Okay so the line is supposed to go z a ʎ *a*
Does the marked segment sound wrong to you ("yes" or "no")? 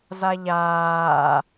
yes